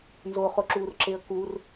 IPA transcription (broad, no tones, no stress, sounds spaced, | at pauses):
n z o χ o ǁ uː r ǁ e ə̯ k u r